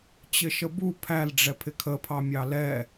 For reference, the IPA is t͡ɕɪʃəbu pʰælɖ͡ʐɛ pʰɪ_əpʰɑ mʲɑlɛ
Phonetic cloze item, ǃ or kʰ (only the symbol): kʰ